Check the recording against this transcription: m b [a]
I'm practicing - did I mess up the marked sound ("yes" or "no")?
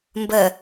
yes